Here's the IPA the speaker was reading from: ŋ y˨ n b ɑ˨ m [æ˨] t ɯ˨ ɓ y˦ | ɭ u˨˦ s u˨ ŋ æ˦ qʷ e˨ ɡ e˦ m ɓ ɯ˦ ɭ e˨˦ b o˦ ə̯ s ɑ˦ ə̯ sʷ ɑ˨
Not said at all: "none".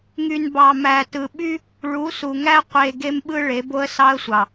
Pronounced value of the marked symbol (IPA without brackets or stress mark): æ˨